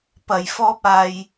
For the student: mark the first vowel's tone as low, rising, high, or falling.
low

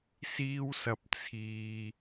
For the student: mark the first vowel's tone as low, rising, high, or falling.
high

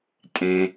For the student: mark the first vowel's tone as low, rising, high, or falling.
high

